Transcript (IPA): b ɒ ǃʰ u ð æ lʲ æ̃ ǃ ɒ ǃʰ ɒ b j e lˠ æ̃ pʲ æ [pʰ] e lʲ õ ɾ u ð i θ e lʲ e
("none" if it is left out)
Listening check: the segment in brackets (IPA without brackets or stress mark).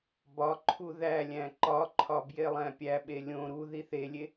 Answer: ɓ